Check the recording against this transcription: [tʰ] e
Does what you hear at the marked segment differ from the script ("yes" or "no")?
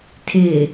no